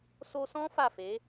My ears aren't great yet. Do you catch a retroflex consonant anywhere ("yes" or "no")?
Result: no